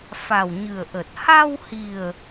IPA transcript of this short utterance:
fa˨˩wɲɨ˨˩ə̯ ʔə˨˩t̚ ha˧whi˨˩ə̯

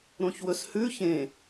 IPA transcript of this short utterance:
ɾõçwɵshʉ çẽ

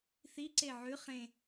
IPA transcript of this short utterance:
θiǀe ʕʉ χẽ

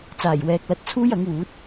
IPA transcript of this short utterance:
t͡saː˨˩jwɛː˨k̚lɐ˨˥t̚ t͡sʰuː˥jɐ˨˥ŋwuː˨˥t̚

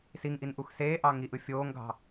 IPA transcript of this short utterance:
siŋʔin ʔuxseːʔɑ ŋiʔɯ fʲoːŋɡʱɑ̤

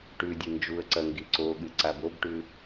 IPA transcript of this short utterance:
ʈʉdʲɨ nd͡ʒuə̯ǀɐ ŋɡiǀoɠɨ ǀabobʈʉ

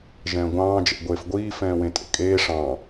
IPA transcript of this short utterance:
ʒɛ̃ːɡʷɑ̃ː d͡ʒɛ̰ɡʷeːfɡʷiː fɛ̃ːwẽtʼḛkʼeː ʂɑ̃

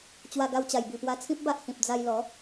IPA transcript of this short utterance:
t͡ɕwa˧ɡa˧wt͡ɕa˨˩j bi˨˩pwa˧t͡sʰĩ˦p̚ba˦ʔ hĩ˨p̚d͡za˧jlɔ˨˦

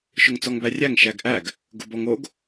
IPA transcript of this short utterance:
ʃʊŋt͡sɔŋbærʲæŋ ʃæɡʔæɡ | ɡʊbɔŋoɡ

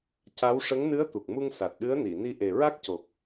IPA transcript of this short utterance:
ca˧˥w ʂə˧˥ŋnɨ˧˥ə̯t̪u˨˩k̚mu˧ŋ sa˨˩t̚ɗɨ˧˥ə̯ni˨˩˨ni˧ ʔe˨˩ɹa˦˥k̚co˨˩k̚

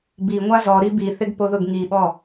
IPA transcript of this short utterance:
biŋʷa zɔɾi biθɪɡpoðʊɡ ŋiɓɔ

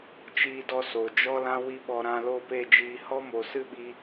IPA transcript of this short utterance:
t͡ʃiː˧dɔ˧ so˨ d͡ʒɔ˦lã˦ wi˦ɓɔ˧ ɾã˧lo˦˨pe˦˨d͡ʒiː˧ hɔ˦mo˨sɨ˦ɓi˧

